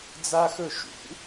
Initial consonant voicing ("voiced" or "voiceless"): voiced